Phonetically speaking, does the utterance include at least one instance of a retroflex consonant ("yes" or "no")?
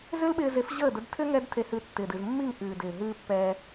no